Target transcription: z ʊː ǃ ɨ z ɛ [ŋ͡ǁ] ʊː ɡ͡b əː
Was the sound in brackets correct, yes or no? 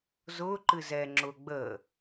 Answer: yes